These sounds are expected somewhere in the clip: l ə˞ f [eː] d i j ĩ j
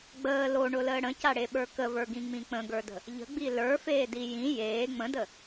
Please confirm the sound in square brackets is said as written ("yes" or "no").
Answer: yes